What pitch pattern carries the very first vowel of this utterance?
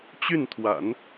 falling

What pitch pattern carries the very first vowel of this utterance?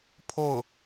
falling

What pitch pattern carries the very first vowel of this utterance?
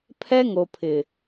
high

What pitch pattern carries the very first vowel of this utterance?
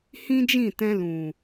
high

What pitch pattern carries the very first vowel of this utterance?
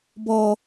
low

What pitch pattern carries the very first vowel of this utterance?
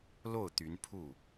falling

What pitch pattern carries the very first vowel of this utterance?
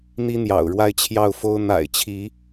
high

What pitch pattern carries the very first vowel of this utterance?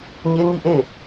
high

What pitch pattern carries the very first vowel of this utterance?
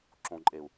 low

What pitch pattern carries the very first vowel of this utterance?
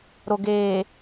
low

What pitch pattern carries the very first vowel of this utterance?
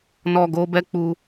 low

